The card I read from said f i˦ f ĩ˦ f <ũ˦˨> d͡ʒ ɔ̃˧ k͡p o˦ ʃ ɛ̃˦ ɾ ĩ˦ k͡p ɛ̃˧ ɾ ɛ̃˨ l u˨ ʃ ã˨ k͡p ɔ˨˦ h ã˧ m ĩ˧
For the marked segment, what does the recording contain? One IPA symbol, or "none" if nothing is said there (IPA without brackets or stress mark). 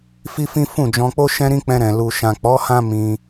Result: ũ˦˨